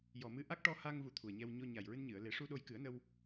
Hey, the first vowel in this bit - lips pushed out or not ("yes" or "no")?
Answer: yes